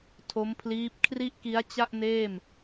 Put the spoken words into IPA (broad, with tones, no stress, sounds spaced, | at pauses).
tʰ o˦˥ m pʰ l iː˦˥ p̚ kʰ r i˥˩ ʔ k i˦˥ a̯ t͡ɕ a˥˩ ʔ n eː˥˩ m